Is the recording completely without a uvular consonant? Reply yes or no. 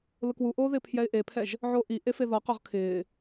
no